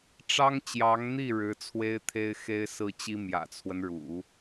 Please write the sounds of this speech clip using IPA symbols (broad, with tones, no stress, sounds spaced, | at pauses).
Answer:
ʈ͡ʂ ɑ˥ ŋ t͡ɕ j ɑ˧˥ ŋ n̪ i˥˩ ɻ ɻ̩˧˥ t͡sʰ w e˥ ɪ̯ t̪ʰ e˥ ɪ̯ x e˥ ɪ̯ s ɹ̩˥ t͡ɕ i˥ m j ä̰˨˩ t͡sʰ w ə˦ n ɻ ṵ˨˩˦